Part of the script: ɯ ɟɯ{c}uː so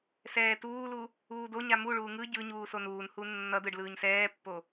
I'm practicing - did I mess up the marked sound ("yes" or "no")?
yes